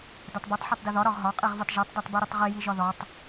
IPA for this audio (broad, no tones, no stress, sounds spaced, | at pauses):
d ɛ tˤ b ɛ tˤ ħ ɒ tˤ d i ð ɒ ɾ ɒ ʁ ɦ ɒ qʼ i ʁ v i tˤ ʒ ɛ tˤ d ɛ tˤ b i ɾ i tˤ ʁ i j i ʒ ɒ ð ɒ tˤ